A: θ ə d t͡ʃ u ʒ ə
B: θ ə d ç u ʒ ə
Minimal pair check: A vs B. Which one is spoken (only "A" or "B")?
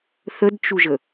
A